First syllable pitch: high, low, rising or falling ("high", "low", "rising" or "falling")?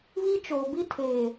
high